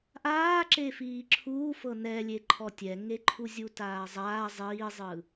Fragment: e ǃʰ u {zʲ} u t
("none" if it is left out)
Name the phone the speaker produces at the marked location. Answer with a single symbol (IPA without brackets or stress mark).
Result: zʲ